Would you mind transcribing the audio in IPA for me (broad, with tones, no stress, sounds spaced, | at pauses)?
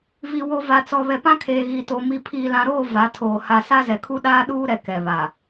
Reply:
v i˨ w o˨ v a˨ t͡s ɔ˨ β ɛ˨ p ã˦ kʰ eː˨ ɣ i˨ t o˨ m i˨ pʰ iː˨ l ã˨ ɾ oː˦˨ v a˨˦ tʰ oː˨ h a˨ s a˦ z ɛ˨ kʰ u˦ ɗ aː˦ ɗ uː˦ ɾ ɛ˨ k ɛ˨ β a˨